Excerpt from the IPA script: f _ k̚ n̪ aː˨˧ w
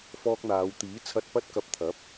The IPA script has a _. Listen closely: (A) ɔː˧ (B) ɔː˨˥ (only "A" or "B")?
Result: A